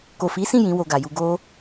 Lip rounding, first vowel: rounded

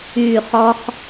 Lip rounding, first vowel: rounded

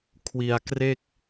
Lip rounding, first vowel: unrounded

